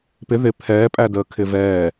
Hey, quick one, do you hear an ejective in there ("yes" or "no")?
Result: yes